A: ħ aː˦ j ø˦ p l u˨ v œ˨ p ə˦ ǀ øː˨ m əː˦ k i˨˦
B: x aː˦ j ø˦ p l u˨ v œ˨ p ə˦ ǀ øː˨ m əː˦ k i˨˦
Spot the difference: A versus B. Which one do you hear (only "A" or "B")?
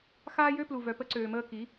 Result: B